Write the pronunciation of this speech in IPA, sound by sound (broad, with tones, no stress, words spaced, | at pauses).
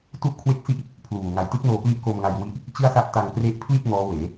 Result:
tu˥˩ʔkʰwe˥˩k̚si˥˩ʔ | pʰluː˨˩ ŋa˨˩jtɯ˦˥k̚ noː˧pli˥˩ʔko˧m ŋa˧jwi˦˥ʔ | t͡ɕɯ˥˩a̯sa˥˩ʔ ta˧ŋkre˦˥ʔpʰli˥˩t̚ ŋɔː˦˥weː˩˦